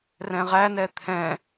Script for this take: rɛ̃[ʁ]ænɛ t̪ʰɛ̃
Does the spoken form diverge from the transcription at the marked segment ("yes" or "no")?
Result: no